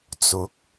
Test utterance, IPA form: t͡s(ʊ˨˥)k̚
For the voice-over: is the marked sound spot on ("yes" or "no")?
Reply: yes